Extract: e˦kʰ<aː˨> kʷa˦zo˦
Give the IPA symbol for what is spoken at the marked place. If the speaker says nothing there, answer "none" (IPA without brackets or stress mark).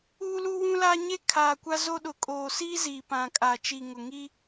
aː˨